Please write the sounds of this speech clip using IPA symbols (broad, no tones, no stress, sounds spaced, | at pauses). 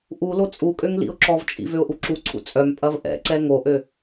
ʔ u l o t͡sʼ u kʼ ø ŋ l ḭ ʊ̯ ǁ ɔ v t͡ʃʼ ḭ v ø ʊ̯ ʔ u ǁ u ǀʰ ṵ t͡sʼ œ m pʼ ɐ v ʔ ɛ̰ ǀ ɛ ŋ o ʔ ø